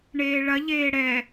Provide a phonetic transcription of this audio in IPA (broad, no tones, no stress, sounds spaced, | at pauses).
ɳ eː ɭ ɐ ʎ eː ɽ ɛ